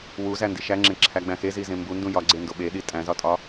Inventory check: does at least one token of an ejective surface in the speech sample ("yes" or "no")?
yes